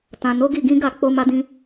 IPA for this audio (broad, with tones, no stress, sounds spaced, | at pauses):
t ã˨ n o˨˦ ɡ i˦˨ ɡ ĩ˨˦ ɡ a˦˨ k͡p o˧ m a˧ d ĩ˧